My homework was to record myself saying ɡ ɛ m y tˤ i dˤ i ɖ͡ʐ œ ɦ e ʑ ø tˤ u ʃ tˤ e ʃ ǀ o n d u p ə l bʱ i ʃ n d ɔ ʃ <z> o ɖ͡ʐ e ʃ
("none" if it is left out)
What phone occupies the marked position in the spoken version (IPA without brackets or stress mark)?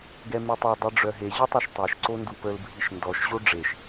ʑ